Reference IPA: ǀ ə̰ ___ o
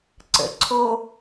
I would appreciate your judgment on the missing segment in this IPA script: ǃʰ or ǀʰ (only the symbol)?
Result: ǀʰ